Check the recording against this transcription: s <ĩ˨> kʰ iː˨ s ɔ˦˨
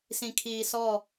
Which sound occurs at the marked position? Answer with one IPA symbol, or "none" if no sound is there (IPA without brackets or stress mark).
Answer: ĩ˨